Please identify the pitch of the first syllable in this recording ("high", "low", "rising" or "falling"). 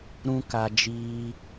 high